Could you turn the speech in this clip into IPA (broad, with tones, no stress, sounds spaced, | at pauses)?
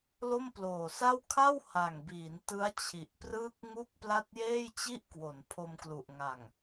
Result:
l o˥˩ m p l oː˨˩ s a˥˩ w kʰ a˥˩ w h a˨˩ ŋ b iː˩˦ n t ɯ˦˥ a̯ t͡ɕʰ i˨˩ ʔ p r ɯː˥˩ k̚ ŋ u˥˩ k̚ p l a˥˩ t̚ j eː˥˩ j t͡ɕ i˥˩ ʔ k w o˩˦ n pʰ o˧ m k l u˨˩ ʔ ŋ a˨˩ ŋ